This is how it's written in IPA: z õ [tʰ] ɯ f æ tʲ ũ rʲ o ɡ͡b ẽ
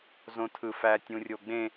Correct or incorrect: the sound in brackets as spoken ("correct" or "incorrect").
correct